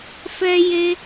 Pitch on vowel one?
high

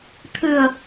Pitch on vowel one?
low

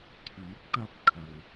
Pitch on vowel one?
rising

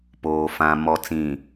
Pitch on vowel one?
low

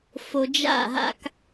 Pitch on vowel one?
low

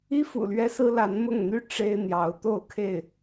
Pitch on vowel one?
high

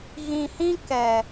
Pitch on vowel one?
low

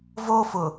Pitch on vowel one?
high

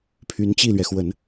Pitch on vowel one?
rising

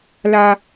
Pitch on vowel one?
high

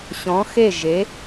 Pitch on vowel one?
rising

